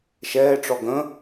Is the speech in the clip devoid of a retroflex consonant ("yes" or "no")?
no